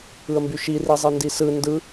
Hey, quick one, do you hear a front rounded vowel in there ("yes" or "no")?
yes